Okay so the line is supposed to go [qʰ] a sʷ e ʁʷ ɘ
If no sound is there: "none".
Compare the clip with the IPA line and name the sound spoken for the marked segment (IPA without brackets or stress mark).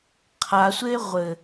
qʰ